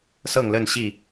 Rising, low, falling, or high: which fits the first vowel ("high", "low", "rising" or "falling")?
falling